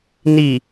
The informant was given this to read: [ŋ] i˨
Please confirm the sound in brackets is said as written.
no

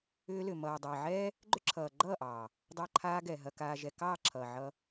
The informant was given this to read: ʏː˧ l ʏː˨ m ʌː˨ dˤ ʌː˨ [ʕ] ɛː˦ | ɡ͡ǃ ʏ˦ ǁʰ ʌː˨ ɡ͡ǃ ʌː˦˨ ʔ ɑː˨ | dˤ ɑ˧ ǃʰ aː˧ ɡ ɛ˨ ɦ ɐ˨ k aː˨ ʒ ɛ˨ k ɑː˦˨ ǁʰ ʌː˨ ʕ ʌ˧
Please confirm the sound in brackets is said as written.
yes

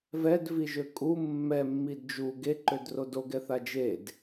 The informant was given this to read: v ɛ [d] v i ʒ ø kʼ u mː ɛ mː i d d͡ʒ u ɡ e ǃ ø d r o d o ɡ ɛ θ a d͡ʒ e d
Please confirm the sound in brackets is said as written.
yes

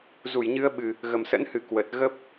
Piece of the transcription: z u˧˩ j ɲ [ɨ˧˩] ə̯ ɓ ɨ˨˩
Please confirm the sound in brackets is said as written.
no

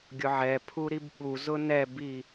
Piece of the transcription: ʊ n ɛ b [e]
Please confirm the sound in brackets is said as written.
no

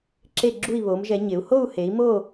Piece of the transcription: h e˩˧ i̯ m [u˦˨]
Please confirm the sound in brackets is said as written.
no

